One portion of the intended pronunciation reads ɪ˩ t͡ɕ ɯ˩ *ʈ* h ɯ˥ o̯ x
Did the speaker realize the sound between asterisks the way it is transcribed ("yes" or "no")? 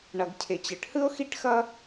yes